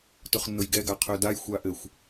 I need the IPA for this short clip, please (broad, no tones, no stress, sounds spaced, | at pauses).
t ʊ χ nː ʊ j ɡ ɛ ɡ a qʰ ø d a j xʷ a ʔ ɘ xʷ